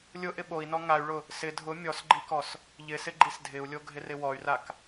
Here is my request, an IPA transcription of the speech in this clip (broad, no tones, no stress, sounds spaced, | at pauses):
lʲ ʊ ʔ ɪ ɓ o i̯ n ɔ ŋ a y̯ ɭ ʊ | s ɪ dʱ ʊ mʲ ɔ s ɡ͡ǃ i k ɔ s | ʎ ɪ s ɪ ɡ͡ǃ i s dʱ ɪ u̯ lʲ o ɡʱ ɪ r ɪ w ɔ y̯ r a k